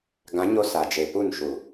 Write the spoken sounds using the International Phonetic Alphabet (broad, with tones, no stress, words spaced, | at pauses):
ɡã˨˦ɲo˧ sa˨d͡ʒe˨ pu˦˨nʃu˨